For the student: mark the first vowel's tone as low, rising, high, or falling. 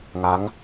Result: rising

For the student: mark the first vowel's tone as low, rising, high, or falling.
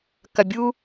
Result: low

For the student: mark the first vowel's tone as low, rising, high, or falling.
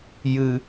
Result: low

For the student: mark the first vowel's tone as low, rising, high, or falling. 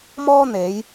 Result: high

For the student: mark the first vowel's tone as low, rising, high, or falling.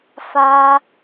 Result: high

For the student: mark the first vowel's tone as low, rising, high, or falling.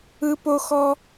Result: low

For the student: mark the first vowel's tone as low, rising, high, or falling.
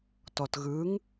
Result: low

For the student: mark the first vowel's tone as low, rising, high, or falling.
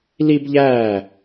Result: high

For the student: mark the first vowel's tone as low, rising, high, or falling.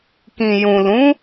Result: low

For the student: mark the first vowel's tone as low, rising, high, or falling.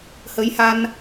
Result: rising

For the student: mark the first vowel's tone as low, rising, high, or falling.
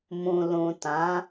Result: low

